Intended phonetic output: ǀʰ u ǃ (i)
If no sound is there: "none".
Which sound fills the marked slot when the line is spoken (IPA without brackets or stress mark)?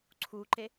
e